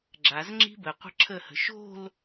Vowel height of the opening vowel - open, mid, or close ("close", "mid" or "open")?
open